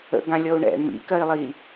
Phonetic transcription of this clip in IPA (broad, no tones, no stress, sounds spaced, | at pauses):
ə̰ ɡ ã lʲ ɔ u̯ ɳ ɛ̰ ɳ m ḭ k ɜ i̯ lˠ i